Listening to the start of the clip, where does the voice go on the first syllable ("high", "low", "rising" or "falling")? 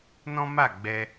high